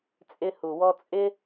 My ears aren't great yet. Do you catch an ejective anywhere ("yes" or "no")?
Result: yes